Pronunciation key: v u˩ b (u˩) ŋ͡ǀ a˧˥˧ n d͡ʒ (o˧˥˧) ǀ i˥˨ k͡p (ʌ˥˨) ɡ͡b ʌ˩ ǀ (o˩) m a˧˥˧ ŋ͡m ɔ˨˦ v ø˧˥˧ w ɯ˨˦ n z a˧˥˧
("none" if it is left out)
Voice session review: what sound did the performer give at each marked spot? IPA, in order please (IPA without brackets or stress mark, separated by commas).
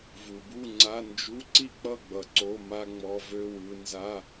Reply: u˥˨, u˧˥˧, ʌ˥˨, o˧˥˧